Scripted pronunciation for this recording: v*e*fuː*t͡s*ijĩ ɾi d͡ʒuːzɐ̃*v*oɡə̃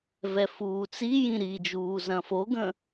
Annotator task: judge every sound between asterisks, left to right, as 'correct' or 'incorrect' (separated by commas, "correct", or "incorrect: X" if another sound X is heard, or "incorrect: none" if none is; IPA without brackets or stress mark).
incorrect: ɛ, correct, incorrect: f